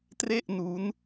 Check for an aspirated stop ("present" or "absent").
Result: absent